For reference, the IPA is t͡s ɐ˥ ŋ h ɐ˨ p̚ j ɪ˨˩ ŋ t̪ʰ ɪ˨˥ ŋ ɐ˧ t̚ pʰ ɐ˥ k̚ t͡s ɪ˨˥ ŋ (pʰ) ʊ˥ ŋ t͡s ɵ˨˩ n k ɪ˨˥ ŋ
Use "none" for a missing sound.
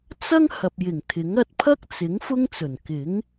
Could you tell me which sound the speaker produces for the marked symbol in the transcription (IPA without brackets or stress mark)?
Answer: f